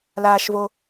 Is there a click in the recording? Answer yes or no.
no